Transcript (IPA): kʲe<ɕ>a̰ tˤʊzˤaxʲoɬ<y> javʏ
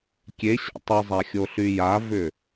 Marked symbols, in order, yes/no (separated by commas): yes, yes